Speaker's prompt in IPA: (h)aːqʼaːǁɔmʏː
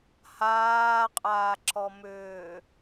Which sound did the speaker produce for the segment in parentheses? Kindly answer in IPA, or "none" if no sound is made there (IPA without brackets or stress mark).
h